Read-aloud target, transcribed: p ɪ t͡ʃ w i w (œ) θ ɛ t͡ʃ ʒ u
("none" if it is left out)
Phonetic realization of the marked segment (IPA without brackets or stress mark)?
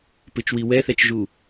ɛ